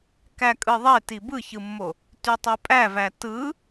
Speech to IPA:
k æ kʼ ɯ ðˤ e t i b ɯ ç ɯ mː o | t y tˤ ø pʼ æ v æ t ɯ

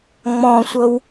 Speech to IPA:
ŋ͡m ɔ̃ sʷ ɤ w

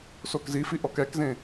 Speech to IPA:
s o k z i f i ʔ ɔ k ɛ k z ẽ

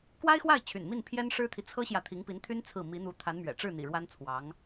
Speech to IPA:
k w a˥ ɪ̯ x w a˥˩ ɪ̯ t͡ɕʰ y̰˨˩ n m i˥˩ n pʰ j ɛ˥ n ʂ ɻ̩˥ t̪ʰ i˨ t͡sʰ ɤ˥ ɕ j ä˨ t̪ʰ i˧˥ ŋ p i˧˥ n t̪ʰ y˥ n t͡sʰ ɹ̩˥˩ m i˧˥ n̪ u˧˥ t̪ʰ a˧˥ n m ɥ ɛ̰˨˩ ʈ͡ʂ ɻ̩˥˩ n̪ ḭ˨˩ ɻ w a˥ n t͡sʰ w ɑ˧˥ ŋ

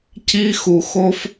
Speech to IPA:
c i˧ x u˨ x o˧ f

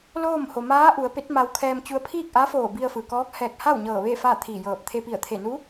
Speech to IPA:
l oː˥˨ m h o˩ m aː˧˥ ʔ u˩˧ ə̯ p e˧˥ t̚ m a˧ w kʰ ɛː˧ m t͡ɕ u˧ ə̯ pʰ iː˥˨ k̚ ʔ a˧˥ f oː˧˩ b i˧ ə̯ f ɯː˩ k ɔː˧˥ k̚ h ɛː˧˩ k̚ h a˥˨ w ɲ ɤː˧˩ ʋ eː˥˨ f aː˥˨ t̪ʰ iː˧˩ j ɤː˧˩ p̚ t̪ʰ e˧ p i˧˩ ə̯ t̪ʰ e˧˩ n u˧˥

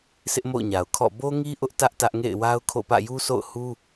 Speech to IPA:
sʰ ɪ˦ ʔ m o̰˦˨ ʊ̯ ɲ a˨ ʊ̯ kʰ ɔ̰˦˨ b o˦ ŋ i˦ ʔ ʊ˦ ʔ t ä˦ ʔ t ä˦ ʔ ŋ ḛ˦˨ ɪ̯ w a˦ ʊ̯ kʰ o̰˦˨ p ä̰˦˨ j u˦ s o̰˦˨ ʊ̯ h u˦

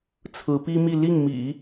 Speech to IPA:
t͡sʰ ɹ̩˧˥ p i˥ m i˥˧ l i˥˩ ŋ m ḭ˨˩˦

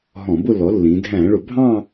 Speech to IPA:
ɦ ɔ̃˧˩˧ b ʊ˥˧ lː ɔ˩˥ lː ĩ˩˧ dʱ æ̃˧˩˧ ɭ ʊ˧˩˧ bʱ ɑ̃˥˧

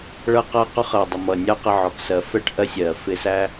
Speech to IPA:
ɭ ʌ˧ q ʌ˧ q ʊ˧ χ ɜ˨ dˤ ə˨ m ʌ˨ nʲ ɑ˦ q ə˧ ʕ ɔ˨ k s ɜ˨ f ɛ˦ ʈ ʔ ɜ˧ sʲ ɜ˨ f ɪ˧ s æ˦

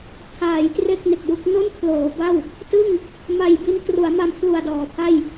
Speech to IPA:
kʰ aː˩˦ j t r e˥˩ k̚ n e˨˩ k̚ j u˥˩ k̚ n o˥˩ n pʰ l oː˩˦ b a˥˩ w | t ɯ˥˩ ŋ | m a˨˩ j b i˦˥ n k r u˩˦ a̯ m a˧ m pʰ l u˨˩ a̯ d ɔː˩˦ pʰ a˥˩ j

